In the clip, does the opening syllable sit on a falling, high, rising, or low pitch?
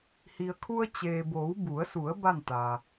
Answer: low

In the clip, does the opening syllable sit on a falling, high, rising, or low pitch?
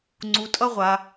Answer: low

